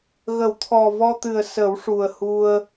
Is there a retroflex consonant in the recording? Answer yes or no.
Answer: yes